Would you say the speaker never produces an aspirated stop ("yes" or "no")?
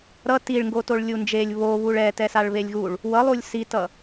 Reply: yes